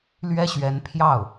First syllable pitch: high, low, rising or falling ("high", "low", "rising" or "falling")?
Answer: high